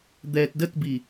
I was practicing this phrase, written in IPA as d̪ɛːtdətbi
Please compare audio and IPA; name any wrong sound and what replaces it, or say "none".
none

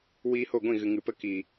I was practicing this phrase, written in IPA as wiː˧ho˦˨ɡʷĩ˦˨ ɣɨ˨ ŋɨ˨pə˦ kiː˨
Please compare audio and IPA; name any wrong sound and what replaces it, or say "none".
none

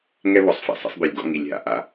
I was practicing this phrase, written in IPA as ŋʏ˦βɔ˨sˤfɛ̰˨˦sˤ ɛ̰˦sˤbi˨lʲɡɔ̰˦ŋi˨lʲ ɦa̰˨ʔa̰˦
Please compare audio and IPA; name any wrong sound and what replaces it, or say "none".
ʏ˦ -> ɛ˦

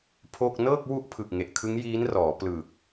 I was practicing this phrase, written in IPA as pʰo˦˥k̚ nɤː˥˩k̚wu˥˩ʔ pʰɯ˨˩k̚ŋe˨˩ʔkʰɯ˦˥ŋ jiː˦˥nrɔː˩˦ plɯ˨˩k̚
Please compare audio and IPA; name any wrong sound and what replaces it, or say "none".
o˦˥ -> o˥˩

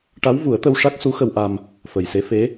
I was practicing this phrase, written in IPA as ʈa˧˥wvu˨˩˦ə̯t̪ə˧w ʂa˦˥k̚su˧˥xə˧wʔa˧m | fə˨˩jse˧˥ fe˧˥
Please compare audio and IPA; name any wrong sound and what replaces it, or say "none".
none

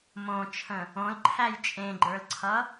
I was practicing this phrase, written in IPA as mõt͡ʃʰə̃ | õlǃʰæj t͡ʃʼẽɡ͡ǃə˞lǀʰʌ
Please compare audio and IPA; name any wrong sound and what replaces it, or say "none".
none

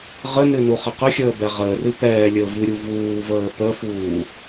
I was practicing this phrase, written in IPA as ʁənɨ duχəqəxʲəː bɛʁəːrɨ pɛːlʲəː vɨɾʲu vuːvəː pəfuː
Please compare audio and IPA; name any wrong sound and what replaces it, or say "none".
d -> n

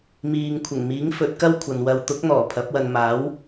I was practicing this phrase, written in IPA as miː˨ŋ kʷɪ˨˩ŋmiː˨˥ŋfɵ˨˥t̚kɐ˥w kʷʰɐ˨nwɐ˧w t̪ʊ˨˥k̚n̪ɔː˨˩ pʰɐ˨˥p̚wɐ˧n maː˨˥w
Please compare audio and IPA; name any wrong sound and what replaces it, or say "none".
kʷ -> kʷʰ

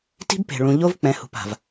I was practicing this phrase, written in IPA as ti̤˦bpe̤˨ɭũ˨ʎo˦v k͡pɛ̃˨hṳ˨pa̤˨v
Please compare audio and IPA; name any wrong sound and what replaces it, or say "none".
none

